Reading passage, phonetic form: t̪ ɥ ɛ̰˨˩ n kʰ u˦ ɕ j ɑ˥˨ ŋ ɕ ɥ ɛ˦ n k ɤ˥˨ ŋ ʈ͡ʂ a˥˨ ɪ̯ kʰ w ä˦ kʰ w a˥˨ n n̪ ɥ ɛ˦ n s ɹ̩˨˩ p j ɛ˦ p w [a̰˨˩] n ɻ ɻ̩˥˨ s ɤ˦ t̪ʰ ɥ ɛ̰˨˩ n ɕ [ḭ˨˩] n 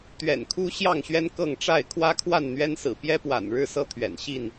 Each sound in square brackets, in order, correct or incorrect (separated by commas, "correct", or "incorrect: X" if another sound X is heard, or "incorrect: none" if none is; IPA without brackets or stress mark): correct, incorrect: i˥˨